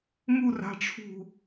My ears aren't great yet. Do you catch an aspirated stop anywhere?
yes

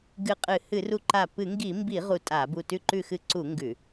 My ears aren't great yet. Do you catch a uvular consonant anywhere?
yes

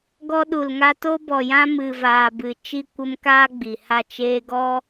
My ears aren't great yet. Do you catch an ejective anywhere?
no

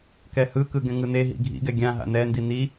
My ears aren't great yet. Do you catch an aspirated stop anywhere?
no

